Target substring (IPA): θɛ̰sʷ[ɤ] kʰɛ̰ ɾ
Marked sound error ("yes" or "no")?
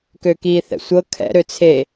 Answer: no